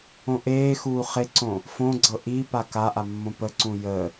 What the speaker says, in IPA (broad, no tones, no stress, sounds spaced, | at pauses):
õ ʔ eː x uː χ e ǀ õ | f õ ɡ͡ǀ ɤ ʔ i p a k a ʔ a mː õ p ə ǀ ũ j ə